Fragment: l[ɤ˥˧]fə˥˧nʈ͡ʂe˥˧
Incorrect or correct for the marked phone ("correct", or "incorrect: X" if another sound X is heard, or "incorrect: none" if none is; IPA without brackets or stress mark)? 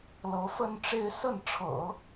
incorrect: ɤ˧˥